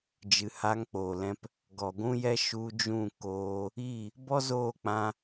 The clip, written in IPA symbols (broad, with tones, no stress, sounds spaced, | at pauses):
d͡ʒ ɨ˨ h a˧ ŋ k͡p o˨ l ɛ̃˧ p | ɡ ɔ˨ ɡʷ ũ˦ j ɛ˦ ʃ u˧ d͡ʒ ũ˦˨ k oː˧ | i˦˨ | b ɔ˦ z oː˦˨ k͡p ã˧